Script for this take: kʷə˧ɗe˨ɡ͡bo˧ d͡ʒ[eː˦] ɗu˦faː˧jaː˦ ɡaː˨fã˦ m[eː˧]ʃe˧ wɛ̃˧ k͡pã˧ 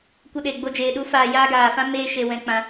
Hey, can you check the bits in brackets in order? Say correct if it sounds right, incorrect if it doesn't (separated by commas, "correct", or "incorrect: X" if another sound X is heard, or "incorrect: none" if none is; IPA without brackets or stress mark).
incorrect: eː˨, incorrect: eː˦